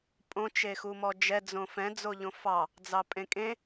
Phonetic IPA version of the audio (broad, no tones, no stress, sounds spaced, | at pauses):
pʼ õ t͡ʃ e x u m ɔ d͡ʒ ɛ d͡z õ f ɛ̃ d͡z o ʎ õ f ɑ | d͡z ɑ pʼ ẽ kʼ ẽ